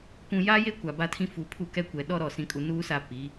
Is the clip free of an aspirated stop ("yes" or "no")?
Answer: no